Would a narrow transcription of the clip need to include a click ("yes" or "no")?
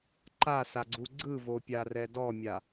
yes